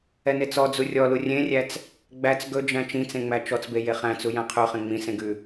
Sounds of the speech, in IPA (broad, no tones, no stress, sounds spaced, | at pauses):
ɛ n e t͡s ɔ d͡z u rʲ ɔ l u rʲ ẽ rʲ æ t͡s | ɡ͡b æ t͡s ɡ ɵ d͡ʒ æ̃ t͡ʃ ĩ t͡s ẽ ŋ͡m æ t͡ʃ ɔ t͡s b e j e χ æ̃ t͡s u j æ̃ qʰ ʉ χ ẽ ŋ͡m ĩ s ẽ ɡ ʉ